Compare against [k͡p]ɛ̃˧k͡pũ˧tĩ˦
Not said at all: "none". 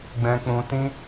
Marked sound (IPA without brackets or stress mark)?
ɡ͡b